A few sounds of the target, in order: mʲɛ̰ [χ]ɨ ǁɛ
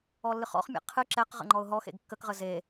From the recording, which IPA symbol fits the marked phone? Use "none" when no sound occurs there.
qʰ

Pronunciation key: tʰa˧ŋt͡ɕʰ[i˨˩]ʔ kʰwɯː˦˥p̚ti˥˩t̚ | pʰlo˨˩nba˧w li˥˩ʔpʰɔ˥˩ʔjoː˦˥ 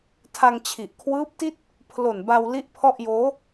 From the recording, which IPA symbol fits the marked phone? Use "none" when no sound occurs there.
i˨˩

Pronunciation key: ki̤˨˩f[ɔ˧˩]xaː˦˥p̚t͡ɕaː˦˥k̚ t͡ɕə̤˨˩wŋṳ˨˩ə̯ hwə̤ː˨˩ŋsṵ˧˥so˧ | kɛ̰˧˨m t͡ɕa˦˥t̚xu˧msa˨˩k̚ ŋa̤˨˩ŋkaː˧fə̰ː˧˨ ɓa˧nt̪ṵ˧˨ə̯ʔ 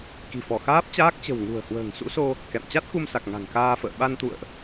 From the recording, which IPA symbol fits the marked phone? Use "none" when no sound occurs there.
ɔ˧˩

